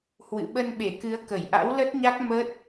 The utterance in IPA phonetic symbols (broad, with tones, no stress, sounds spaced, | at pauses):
h w ɨ̰˧˨ ɓ ə˧ n ɓ e˧˩ k ɨ˨˦ ə̯ k ə˧˩ j ʔ a̰˧˥ w l ə˦˥ t̚ ɲ a˦˥ k̚ m ə˦˥ t̚